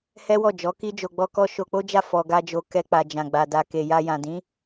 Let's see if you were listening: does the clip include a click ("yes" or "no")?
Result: no